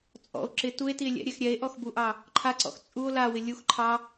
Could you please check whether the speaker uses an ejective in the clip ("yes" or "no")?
yes